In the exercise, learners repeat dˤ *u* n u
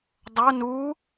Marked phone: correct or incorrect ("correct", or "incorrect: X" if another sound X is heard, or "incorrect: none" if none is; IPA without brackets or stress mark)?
incorrect: o